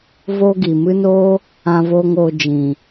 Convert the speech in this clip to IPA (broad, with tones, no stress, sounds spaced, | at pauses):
v o˦ ɡ i˨ m ɨ˦ n oː˦ | ã˦ v oː˦ ŋ oː˧ d͡ʒ ĩ˨